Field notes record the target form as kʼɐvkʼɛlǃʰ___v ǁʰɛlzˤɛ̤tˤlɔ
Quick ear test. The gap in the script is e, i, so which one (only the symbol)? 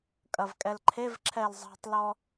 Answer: e